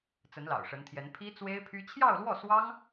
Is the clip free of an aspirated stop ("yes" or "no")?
no